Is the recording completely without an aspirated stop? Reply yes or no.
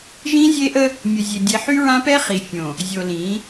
yes